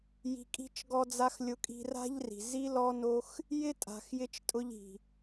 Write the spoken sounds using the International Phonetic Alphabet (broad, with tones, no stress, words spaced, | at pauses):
ji̤˧kʼi̤˦t͡ʃ ɡɔ˧d͡za˧x lʲʊ˧kʼi̤˧ra̤˦ʎri̤˨ zi˦lɔ˦no˦x | jɪ˦tʼa̤˨xjɪ˧t͡ʃ tʼʊ˧ʎi̤˨